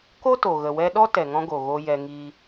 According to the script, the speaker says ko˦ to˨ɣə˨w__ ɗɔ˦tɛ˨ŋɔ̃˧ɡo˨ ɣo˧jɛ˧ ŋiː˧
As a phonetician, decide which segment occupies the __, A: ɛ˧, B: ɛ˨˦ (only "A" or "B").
A